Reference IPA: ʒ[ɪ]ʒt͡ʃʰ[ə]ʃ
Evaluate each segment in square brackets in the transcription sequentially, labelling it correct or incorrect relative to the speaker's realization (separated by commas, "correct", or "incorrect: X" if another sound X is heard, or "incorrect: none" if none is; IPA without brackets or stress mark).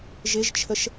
correct, correct